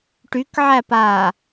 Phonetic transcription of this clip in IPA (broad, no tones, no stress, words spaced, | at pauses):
ʈykʕæpaː